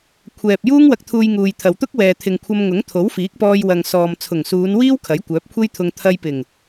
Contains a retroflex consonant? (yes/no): no